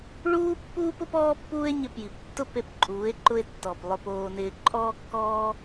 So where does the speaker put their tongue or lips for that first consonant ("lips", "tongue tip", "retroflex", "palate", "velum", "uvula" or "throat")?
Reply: retroflex